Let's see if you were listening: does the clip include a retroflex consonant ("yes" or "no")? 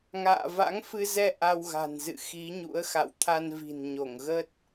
no